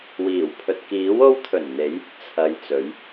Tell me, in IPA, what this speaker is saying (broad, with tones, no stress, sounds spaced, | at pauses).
w iː˨˩ w pʰ ɵ˨ t̚ k iː˨˥ w o˧ w t̪ʰ ɵ˨˩ n n̪ e˨˥ j | t͡sʰ ɐ˨˧ j t͡s ɵ˨˥ ɥ